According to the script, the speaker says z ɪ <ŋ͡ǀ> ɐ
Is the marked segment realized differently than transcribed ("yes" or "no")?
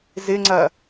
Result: no